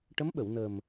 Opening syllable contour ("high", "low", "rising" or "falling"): rising